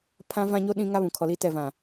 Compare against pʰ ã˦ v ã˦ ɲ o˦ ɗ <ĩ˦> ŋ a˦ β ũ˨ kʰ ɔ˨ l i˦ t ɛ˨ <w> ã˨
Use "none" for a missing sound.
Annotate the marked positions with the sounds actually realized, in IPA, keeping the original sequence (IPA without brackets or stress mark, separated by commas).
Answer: ĩ˦, v